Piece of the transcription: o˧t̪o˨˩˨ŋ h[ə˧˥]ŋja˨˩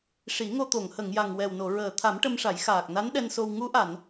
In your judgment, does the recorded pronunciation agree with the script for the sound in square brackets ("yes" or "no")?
no